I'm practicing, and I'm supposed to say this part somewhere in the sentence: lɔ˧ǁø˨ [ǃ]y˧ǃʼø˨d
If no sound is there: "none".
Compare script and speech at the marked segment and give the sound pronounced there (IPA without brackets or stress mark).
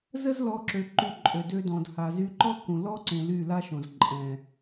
ǃ